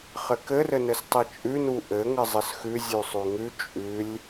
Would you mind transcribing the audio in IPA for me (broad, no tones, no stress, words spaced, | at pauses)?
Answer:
χɘkɘrɘnɘs tˤit͡ʃʼʉnu ʔɘŋɘ zˤɘsxʉ zʲʉsˤʉŋʉ t͡ʃʼʉlʲ